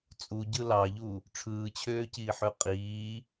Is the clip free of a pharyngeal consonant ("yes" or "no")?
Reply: no